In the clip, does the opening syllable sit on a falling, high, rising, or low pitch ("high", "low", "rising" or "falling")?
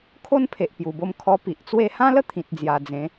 high